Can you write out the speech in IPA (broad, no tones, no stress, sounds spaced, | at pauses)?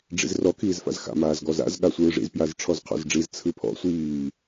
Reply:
ɖ͡ʐ ḭ z r ɔ kʰ iː z f a̰ z x a̰ m aː z ɡ ɔ z a̰ z ɠ a sʷ ɯː ʐ ḭ z p j a z ʈ͡ʂʰ ɔ z qʰ ɔ̰ z ɖ͡ʐ i z t͡sʰ ɯ pʰ ɔ̰ sʷ iː